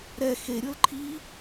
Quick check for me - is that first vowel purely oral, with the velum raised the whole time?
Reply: yes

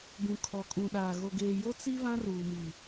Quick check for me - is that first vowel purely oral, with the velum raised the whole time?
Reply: no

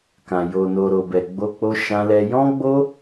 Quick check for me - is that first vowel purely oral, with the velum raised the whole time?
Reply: no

